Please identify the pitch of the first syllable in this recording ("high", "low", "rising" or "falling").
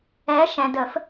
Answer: rising